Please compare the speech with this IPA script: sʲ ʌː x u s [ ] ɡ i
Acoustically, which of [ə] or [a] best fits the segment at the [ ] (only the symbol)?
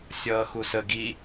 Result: ə